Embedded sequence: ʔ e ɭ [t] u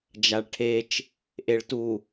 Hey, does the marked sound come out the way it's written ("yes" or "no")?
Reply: yes